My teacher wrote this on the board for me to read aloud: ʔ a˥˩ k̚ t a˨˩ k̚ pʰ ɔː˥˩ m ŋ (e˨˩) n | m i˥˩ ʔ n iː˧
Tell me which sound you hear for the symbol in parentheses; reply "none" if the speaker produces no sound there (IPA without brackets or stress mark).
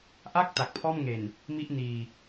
e˨˩